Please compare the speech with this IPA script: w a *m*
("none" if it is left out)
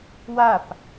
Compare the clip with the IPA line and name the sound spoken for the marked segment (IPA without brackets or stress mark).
p